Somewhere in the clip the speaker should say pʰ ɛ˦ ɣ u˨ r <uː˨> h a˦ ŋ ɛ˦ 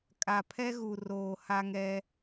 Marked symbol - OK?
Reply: no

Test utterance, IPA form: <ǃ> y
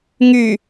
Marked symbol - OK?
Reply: no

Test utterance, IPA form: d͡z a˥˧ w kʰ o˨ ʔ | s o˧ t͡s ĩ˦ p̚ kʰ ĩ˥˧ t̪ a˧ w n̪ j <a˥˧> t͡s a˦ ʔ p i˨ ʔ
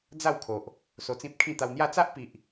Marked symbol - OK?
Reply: yes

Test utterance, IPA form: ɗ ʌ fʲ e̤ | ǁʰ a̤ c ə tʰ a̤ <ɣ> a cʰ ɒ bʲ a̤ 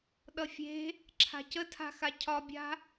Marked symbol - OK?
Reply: no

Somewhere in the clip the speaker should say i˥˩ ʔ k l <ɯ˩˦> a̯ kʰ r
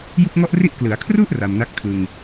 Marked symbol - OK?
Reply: yes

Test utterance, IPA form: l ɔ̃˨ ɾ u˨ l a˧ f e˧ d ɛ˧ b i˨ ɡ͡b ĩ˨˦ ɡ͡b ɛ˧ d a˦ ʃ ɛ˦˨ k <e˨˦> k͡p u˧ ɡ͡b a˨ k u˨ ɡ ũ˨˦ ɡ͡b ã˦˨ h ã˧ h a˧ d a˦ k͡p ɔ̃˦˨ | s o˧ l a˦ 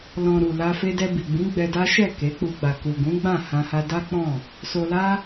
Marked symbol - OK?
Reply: yes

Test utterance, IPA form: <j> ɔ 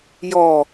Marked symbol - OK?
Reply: yes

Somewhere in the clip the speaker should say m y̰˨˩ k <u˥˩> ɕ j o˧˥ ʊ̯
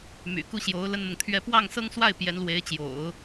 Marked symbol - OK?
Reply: yes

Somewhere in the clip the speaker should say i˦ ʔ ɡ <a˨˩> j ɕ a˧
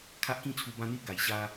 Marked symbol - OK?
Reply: yes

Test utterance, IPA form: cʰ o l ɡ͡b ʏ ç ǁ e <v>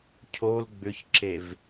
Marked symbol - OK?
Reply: yes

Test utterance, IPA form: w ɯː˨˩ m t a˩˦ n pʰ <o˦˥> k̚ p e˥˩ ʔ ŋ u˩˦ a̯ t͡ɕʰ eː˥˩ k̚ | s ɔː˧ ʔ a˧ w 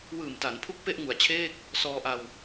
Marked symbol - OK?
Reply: no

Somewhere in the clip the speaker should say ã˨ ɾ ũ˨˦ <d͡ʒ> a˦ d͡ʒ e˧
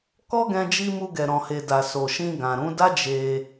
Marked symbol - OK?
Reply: no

